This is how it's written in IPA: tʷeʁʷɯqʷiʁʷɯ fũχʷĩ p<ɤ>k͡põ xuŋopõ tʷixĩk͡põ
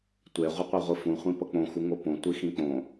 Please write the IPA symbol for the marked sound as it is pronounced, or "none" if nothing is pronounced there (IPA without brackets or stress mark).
ɤ